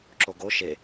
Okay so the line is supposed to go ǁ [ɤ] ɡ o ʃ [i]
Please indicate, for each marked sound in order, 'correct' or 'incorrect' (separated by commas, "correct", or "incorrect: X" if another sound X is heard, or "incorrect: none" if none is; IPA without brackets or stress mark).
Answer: incorrect: o, incorrect: e